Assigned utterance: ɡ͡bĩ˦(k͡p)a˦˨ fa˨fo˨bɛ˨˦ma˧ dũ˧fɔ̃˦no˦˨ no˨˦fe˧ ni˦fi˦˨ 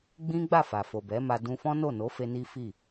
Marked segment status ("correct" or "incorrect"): incorrect